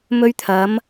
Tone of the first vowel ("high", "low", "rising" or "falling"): high